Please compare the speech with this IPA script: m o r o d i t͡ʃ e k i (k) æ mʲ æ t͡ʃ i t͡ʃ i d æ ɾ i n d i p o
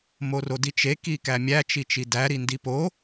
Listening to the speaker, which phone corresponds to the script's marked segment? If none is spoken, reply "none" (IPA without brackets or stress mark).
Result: k